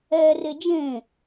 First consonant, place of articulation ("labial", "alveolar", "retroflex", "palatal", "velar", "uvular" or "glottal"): alveolar